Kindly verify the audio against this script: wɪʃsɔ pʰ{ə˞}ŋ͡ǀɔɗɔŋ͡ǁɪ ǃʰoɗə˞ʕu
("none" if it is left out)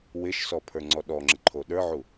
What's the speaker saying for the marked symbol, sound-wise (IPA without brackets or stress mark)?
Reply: ə˞